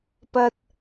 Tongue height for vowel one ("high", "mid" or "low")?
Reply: low